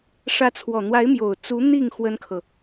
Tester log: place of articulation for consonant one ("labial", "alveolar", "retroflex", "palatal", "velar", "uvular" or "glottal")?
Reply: retroflex